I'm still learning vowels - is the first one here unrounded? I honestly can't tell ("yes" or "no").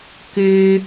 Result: no